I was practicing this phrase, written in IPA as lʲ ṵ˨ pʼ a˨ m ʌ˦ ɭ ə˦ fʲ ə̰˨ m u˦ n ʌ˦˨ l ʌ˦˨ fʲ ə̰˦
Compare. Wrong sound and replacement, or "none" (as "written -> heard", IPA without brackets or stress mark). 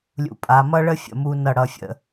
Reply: l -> ɽ